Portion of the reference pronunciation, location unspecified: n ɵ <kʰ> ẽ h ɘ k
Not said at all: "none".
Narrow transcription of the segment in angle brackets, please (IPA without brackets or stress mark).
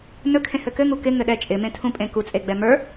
kʰ